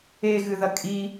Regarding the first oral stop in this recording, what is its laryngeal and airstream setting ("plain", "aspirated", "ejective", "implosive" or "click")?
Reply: ejective